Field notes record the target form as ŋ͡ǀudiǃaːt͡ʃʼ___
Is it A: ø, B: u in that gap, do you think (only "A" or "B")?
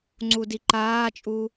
B